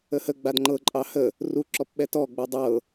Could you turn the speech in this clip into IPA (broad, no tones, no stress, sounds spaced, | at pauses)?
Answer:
ə h ə ɡ͡b a d ŋ͡ǃ ɤ ǃʼ ɑ h ə | r u ǁ ɔ p ɓ ɛ t ɔ ɡ͡b ɤ dˤ ɤ